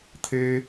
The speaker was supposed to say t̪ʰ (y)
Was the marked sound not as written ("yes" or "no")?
yes